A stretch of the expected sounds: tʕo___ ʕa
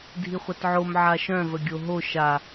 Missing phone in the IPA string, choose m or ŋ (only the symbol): m